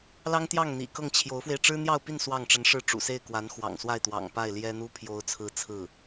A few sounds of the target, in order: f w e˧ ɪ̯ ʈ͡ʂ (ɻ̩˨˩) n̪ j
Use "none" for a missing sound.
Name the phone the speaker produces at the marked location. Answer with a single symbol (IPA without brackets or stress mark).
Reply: ɻ̩˥